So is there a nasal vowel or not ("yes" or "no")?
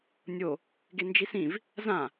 yes